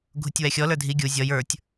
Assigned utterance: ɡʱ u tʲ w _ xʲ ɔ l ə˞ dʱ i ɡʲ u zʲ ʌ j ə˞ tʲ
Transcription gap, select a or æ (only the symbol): æ